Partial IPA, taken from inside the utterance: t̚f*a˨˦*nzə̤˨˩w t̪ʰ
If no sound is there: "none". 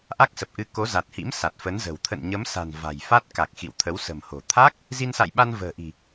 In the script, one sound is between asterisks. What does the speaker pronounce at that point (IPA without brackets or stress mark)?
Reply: ə˨˦